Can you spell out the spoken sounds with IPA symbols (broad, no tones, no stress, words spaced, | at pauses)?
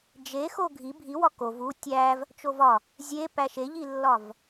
d͡ʒe xoɡʱi bʱiwɒ kov u tʲæv | t͡ʃovɒ | zʲepæ ʃeʎilːɒv